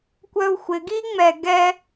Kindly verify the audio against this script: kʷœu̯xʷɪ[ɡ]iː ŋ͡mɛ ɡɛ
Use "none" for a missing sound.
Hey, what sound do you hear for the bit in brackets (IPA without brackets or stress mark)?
ɡ